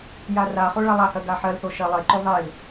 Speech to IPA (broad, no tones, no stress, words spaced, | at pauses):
jaraχo ɭalˠahɜ ɡaħɜlθo ʃɜlˠeǃo ðˤel